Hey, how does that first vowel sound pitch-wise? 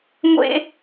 high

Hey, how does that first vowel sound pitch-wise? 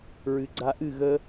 low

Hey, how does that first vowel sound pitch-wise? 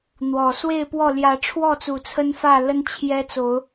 low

